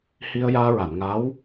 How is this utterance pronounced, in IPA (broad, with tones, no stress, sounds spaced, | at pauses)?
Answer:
h i˧ ə̯ j aː˧ ɹ a˨˩˨ n ŋ a˧˥ w